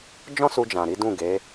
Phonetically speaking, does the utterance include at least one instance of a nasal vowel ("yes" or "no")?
yes